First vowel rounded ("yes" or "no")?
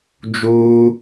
yes